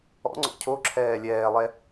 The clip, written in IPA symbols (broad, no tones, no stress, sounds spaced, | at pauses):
ɔ̰ ŋ͡ǀ ɔ̰ cʰ o ǁʰ ɛː lʲ ɛː lˠ ɛ